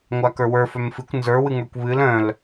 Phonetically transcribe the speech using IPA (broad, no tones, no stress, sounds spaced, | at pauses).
ŋʷ a k ə˞ w ə˞ f œ m f ɨ kʷ n z ə˞ w ɨ ŋ ə˞ kʷ β ɨ l œ̃ l